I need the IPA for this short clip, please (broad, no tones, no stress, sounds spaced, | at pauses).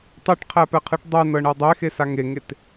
tˤ ɯ ʈ qʰ æ p ɛ qʰ ɯ ʈ dˤ ɛ n ɤ ɳ ɤ dˤ e x e s a ŋ e ŋ e t